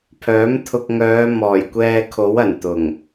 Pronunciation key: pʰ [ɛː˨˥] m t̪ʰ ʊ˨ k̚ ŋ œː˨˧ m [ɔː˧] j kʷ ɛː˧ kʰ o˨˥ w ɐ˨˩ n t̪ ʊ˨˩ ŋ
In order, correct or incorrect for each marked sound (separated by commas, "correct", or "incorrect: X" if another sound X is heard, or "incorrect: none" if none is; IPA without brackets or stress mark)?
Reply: incorrect: œː˨˥, incorrect: ɔː˨˩